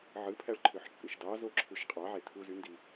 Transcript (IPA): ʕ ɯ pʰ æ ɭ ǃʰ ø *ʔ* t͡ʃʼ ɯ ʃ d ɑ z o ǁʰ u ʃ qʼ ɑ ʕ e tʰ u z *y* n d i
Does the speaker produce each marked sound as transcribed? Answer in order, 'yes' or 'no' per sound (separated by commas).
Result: no, yes